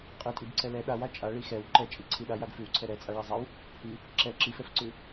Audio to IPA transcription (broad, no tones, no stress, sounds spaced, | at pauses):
qʼ i tʼ i b ǀ ɛ l ɛ ɗ a w a t͡ʃʼ a ɭ i x ɛ w ǃ ɛ t͡ʃʼ i ǀʰ i ɗ a j a ɡ f ʉ w ǀʰ ɛ ɾ ɛ t͡sʼ a ɭ ɛ zˤ a w | h i | ǁ ɛ ǁ i f ɛ f ǀ ʉ